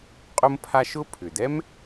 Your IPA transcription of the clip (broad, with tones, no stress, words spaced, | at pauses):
qʼʊ˥mpʰa˥ ʃʊ˥ pʰʏ˩dɛ˥m